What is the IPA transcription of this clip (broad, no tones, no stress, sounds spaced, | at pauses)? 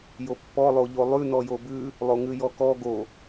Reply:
j o pː ɔ lˠ o ʎ o lˠ ʉ n ɔ j o b ʉ | lˠ o ŋ ʉ j ɔ k ɔ ɡ o